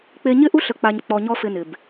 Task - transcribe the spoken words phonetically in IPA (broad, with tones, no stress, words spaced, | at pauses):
k͡pe˧ɲɪ˦ʔu˦ ɬə˧k͡pa˧ɲ k͡pɔ˧ɲɔ˦fɪ˧ nɪ˨b